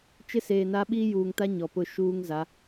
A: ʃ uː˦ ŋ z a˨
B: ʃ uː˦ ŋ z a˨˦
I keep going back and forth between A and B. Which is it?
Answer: B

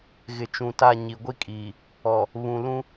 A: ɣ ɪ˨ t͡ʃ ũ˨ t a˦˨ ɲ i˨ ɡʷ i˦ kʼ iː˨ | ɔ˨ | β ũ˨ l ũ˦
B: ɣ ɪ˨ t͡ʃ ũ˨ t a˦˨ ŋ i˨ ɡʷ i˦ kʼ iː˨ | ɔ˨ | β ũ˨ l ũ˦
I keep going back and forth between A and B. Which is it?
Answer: A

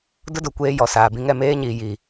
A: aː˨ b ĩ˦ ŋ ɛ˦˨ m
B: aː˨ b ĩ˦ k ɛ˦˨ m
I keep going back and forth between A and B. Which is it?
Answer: A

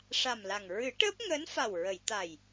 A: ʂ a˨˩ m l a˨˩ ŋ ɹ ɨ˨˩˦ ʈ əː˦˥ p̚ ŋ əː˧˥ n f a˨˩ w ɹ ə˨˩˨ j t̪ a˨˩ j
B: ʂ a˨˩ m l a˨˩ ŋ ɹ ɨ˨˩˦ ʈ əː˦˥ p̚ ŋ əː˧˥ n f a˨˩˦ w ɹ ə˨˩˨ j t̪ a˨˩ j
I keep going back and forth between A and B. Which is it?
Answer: A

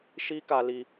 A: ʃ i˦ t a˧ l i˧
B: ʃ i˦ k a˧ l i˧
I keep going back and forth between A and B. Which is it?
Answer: B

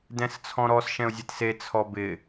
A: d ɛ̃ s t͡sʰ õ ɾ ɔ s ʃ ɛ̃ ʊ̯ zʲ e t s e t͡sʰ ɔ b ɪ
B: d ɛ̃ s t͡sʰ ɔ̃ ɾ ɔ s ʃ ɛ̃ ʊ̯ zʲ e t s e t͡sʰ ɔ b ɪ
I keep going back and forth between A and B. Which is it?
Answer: B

